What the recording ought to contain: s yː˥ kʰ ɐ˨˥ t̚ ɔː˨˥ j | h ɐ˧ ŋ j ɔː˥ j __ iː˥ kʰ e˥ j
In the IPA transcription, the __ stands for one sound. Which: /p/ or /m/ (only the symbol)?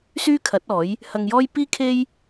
p